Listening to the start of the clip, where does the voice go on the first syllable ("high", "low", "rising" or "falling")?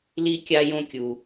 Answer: high